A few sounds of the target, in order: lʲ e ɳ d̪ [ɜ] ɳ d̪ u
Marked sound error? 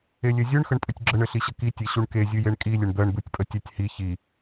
no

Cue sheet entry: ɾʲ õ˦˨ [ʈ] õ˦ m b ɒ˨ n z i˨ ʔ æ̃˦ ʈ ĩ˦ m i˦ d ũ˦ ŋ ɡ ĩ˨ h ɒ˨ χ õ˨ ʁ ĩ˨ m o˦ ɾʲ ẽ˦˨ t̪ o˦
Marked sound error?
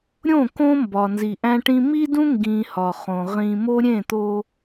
yes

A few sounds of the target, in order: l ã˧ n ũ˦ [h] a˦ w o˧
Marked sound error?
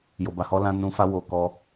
yes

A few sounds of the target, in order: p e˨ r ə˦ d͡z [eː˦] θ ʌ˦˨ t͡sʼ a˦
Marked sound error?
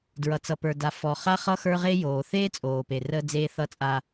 no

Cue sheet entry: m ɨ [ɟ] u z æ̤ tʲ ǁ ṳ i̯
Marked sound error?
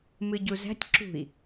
no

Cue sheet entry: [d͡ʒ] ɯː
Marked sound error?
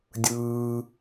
yes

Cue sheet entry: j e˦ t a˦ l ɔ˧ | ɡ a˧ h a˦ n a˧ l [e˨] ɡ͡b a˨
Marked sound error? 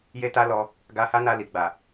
yes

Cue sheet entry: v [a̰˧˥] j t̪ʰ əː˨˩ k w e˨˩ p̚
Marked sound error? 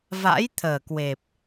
no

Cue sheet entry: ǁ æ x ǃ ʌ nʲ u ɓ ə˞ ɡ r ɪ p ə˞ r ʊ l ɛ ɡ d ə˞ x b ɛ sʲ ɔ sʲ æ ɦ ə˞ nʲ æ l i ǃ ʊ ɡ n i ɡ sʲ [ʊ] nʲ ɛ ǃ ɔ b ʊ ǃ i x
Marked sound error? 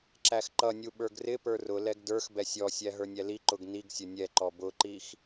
no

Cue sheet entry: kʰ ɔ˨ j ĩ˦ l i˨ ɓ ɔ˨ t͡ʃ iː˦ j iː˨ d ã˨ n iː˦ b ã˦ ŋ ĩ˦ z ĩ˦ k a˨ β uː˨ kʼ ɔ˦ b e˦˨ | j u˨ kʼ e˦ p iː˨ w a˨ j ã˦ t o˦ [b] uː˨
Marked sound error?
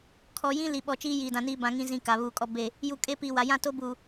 no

